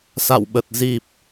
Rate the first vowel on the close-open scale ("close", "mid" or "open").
open